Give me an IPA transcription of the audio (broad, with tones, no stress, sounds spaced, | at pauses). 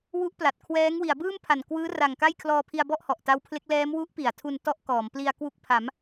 w u˦˥ ʔ p l a˨˩ t̚ kʰ w ɛː˦˥ ŋ w i˩˦ a̯ b ɯː˥˩ m pʰ a˨˩ n k w ɯː˦˥ r a˨˩ ŋ k a˥˩ j kʰ l ɔː˧ pʰ i˧ a̯ b ɔ˥˩ ʔ h ɔ˨˩ ʔ t a˦˥ w pʰ l e˦˥ k̚ l ɛː˦˥ m w u˦˥ ʔ p i˩˦ a̯ tʰ u˧ n t ɔ˥˩ ʔ k ɔː˩˦ m p l i˧ a̯ k w u˦˥ k̚ pʰ a˩˦ m